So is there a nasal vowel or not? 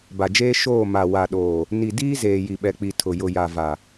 no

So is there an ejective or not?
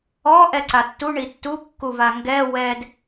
no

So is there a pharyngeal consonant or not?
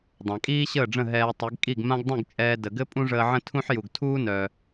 yes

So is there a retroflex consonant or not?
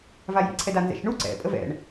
yes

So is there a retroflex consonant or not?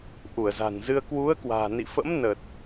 no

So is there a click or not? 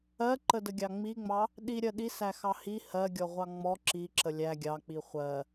yes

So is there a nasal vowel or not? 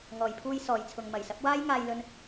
no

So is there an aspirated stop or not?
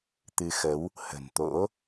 no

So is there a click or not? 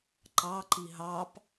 yes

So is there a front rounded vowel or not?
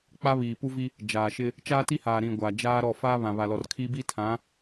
no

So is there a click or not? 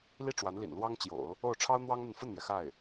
no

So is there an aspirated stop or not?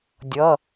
no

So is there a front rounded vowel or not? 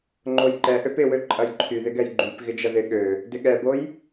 yes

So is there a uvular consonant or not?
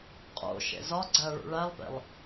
yes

